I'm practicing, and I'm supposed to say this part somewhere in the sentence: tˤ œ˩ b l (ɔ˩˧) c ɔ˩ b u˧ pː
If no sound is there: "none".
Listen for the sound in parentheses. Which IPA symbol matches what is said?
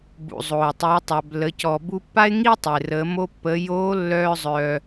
ə˩˧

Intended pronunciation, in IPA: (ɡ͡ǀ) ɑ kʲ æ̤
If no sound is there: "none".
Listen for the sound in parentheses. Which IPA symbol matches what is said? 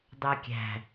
d̪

